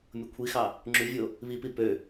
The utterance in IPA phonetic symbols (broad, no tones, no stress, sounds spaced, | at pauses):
mʲ o kʷʰ i x ɑ | ŋ͡ǁ y vʲ o | β i p i p ø